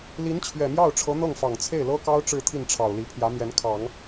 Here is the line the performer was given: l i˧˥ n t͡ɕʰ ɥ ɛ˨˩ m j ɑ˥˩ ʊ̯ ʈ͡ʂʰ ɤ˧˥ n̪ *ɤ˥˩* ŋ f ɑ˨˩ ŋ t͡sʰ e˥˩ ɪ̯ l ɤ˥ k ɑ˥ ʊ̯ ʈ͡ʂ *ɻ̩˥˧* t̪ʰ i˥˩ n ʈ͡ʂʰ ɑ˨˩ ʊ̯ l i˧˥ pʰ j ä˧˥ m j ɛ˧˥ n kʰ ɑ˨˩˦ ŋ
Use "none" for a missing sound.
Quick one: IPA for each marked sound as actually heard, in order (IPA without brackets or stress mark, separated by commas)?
ɤ˥˩, ɻ̩˥˧